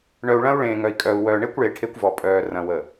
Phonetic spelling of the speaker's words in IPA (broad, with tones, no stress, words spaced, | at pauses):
ɳœ˨u̯ɭɐ̃˦u̯ ɭẽː˨ŋœ˨i̯kʼœː˨u̯wœː˨ ɳe˦kʷɭe˨ ʈʰe˦kʷvɔ˨ pʼœː˨ rɐ̃˨wə˨